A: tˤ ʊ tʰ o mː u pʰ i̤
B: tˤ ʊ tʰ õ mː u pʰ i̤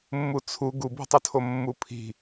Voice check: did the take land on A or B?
A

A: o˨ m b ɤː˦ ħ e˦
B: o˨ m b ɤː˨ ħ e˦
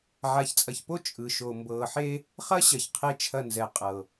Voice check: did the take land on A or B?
B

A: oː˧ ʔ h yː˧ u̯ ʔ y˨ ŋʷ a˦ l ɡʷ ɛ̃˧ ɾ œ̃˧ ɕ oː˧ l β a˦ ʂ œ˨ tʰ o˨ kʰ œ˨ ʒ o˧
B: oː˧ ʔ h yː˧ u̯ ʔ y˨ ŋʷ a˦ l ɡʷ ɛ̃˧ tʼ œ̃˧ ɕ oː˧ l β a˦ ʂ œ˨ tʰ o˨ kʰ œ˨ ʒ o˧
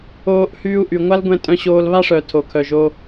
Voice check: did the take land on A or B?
B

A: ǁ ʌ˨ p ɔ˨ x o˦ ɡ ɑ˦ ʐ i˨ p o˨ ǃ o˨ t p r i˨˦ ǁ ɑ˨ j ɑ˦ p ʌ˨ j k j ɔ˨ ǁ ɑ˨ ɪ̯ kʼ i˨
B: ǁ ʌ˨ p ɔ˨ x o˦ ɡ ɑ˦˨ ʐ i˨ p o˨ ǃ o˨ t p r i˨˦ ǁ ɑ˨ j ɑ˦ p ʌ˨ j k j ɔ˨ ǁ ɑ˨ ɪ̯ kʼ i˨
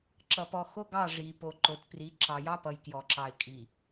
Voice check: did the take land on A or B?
B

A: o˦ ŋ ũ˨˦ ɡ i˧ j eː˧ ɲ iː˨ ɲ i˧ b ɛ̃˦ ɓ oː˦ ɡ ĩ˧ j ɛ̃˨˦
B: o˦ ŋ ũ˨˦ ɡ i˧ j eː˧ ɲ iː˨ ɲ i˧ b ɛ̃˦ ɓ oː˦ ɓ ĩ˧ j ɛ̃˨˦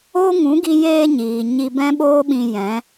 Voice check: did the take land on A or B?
B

